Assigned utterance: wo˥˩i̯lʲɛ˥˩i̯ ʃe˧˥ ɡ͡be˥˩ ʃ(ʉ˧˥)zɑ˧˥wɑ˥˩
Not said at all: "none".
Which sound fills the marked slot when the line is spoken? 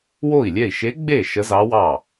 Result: ə˧˥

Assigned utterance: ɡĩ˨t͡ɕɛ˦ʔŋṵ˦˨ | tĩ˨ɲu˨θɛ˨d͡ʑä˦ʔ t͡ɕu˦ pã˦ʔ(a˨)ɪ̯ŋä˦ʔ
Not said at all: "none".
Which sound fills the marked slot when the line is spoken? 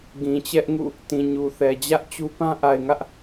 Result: a˨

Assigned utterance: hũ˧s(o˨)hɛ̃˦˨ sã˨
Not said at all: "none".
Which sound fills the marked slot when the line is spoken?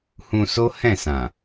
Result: o˦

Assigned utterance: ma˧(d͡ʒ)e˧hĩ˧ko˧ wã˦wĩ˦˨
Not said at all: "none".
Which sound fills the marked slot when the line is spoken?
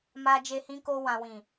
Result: d͡ʒ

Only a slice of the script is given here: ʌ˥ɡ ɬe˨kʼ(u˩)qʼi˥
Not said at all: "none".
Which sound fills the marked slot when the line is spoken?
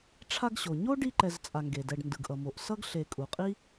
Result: u˩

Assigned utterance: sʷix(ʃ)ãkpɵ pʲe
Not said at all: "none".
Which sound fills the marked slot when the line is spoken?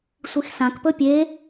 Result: s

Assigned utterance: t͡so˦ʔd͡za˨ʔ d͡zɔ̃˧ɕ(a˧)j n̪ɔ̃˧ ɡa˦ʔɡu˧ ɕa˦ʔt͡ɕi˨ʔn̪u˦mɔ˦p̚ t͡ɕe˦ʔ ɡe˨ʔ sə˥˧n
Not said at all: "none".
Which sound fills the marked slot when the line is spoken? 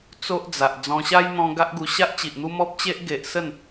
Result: a˦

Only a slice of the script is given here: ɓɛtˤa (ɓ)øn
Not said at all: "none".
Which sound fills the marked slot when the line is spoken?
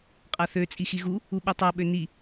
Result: ɓ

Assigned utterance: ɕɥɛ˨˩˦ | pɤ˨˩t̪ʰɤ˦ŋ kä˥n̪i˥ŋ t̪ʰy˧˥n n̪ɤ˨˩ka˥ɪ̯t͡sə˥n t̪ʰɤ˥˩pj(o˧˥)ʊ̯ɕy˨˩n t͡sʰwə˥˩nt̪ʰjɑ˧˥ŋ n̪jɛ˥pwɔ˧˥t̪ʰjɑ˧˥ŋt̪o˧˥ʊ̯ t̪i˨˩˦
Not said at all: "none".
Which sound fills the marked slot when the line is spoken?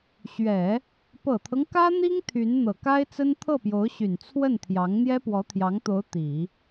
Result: o˧˥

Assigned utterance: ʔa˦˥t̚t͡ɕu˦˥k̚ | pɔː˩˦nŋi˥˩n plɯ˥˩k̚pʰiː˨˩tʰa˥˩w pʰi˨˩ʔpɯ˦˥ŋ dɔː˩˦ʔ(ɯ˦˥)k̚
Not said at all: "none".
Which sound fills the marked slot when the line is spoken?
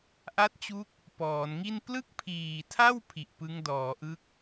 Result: ɯ˦˥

